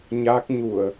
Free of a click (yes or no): yes